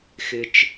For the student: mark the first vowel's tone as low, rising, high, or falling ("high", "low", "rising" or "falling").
low